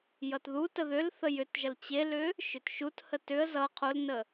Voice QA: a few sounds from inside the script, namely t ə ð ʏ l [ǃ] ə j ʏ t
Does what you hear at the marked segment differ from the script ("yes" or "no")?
yes